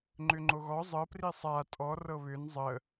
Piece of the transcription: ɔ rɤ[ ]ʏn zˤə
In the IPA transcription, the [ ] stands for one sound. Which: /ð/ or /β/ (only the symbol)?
β